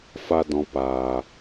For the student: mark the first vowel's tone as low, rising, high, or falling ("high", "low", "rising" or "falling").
high